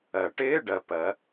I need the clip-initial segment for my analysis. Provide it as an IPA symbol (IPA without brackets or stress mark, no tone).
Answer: ɜ